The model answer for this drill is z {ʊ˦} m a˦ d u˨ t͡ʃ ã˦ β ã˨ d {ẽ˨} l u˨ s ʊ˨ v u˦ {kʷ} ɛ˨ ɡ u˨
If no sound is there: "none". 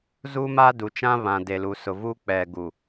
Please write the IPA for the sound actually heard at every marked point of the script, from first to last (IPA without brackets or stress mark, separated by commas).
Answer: u˦, e˨, k͡p